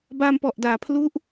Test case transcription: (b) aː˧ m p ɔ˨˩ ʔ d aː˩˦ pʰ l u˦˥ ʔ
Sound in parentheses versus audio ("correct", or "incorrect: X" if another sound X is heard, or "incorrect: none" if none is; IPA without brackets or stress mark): correct